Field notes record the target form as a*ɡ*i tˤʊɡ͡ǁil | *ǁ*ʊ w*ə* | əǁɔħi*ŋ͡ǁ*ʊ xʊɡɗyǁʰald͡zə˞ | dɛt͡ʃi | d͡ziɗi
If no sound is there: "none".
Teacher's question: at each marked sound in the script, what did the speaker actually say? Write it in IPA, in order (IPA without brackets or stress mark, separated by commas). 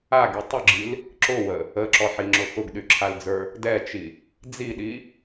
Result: ɡ, ǁ, ə, ŋ͡ǁ